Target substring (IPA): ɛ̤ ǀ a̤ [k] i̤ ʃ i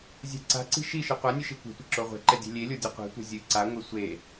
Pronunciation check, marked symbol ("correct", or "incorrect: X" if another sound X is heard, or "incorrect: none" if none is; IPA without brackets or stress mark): incorrect: ǀ